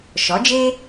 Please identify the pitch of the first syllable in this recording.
rising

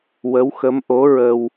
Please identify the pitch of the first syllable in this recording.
rising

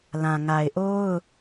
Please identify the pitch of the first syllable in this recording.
low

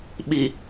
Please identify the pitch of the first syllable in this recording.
low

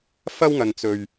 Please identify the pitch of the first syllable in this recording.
high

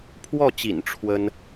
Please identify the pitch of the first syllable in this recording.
falling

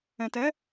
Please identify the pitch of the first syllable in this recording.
low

